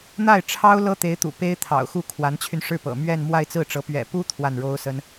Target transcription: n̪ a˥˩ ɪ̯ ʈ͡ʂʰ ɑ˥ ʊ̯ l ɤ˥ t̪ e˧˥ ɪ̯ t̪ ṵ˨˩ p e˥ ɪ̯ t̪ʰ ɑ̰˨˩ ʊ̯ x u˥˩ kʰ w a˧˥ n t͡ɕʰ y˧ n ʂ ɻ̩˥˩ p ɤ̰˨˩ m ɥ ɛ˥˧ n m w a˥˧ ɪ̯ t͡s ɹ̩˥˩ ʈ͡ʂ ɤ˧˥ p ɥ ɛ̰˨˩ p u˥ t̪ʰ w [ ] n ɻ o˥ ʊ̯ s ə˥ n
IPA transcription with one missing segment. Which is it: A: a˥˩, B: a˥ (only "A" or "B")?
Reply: A